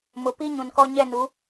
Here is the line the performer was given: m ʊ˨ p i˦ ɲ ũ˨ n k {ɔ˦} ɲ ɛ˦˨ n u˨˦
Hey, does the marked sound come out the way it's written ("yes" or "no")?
yes